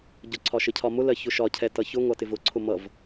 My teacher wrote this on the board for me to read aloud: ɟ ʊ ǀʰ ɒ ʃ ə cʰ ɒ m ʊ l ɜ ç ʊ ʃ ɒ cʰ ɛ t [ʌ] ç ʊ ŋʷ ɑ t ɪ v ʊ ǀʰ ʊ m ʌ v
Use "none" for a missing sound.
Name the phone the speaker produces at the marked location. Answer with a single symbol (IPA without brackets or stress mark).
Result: ʌ